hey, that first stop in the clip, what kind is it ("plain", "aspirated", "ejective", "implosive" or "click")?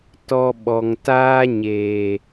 plain